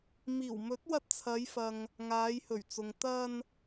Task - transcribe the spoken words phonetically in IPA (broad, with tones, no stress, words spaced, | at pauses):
miː˨˩wmɵ˨˥t̚wɐ˧t̚ t͡sʰɐ˨˧jfɐ˨ŋ | ŋaː˨˧jhɵ˨˩ɥt͡sʊ˨ŋ t̪ɐ˧n